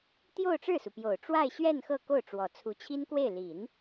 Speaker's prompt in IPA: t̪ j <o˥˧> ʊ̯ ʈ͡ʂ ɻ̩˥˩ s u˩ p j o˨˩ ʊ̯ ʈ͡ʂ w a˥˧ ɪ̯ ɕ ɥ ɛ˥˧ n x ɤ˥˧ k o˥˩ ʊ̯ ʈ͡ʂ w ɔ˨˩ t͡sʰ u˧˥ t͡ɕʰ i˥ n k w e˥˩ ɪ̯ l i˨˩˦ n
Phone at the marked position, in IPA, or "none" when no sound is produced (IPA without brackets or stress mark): o˥˧